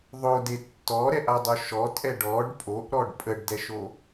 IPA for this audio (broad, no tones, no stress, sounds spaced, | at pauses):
ðˤ o d e tː ɔ ɾ ɛ ʔ a dˤ o ʃ ɔ tʼ ɛ ɖ ɔ ɖ pʼ o ʔ ɾ ɔ ɖ pʼ ə ɖ d ɛ ʃ o